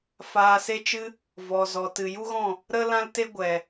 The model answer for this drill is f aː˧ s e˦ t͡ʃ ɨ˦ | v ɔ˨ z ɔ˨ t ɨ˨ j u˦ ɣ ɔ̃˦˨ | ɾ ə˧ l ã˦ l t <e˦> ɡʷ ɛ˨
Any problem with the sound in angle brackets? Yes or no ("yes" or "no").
no